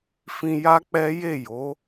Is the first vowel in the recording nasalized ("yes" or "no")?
yes